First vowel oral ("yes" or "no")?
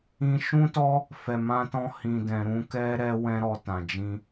no